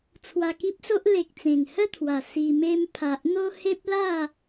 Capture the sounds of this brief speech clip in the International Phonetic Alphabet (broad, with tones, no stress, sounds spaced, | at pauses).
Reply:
t͡sʰ w a˧ k i˦ p̚ s o˦ ʔ l e˨ k̚ t͡s ẽ˨˩ ŋ h ə˥˧ t̪ʰ w a˨˩ s i˧ m e˦ m pʰ a˨ ʔ n̪ o˦ h e˦ p̚ l a˥˧